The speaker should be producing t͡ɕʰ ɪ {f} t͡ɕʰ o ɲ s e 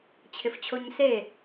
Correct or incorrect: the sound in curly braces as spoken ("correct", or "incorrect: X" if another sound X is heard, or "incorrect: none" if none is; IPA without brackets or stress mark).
correct